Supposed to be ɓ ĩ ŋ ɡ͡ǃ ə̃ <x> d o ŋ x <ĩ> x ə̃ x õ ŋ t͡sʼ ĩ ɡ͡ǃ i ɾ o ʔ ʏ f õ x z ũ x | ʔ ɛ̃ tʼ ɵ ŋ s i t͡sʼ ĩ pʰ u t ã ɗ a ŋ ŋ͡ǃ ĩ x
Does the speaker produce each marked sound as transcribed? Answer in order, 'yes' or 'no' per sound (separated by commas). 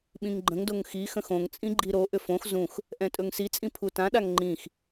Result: no, no